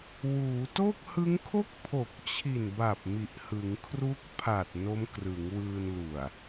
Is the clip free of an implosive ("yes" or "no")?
yes